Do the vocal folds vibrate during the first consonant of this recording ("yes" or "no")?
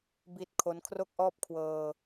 yes